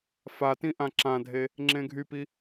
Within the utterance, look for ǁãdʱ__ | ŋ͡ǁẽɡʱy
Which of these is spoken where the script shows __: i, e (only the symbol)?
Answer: e